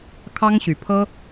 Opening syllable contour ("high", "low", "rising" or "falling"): high